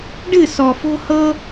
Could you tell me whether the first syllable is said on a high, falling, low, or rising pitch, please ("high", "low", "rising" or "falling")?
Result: falling